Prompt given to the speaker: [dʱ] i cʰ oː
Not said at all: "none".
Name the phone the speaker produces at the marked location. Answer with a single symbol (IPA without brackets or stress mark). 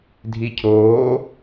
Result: dʱ